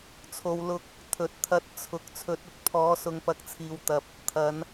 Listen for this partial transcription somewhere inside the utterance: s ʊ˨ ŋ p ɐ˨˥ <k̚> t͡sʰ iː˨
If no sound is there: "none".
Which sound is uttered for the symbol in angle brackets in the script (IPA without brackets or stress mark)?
k̚